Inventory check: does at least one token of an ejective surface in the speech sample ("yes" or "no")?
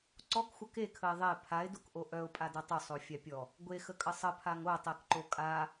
yes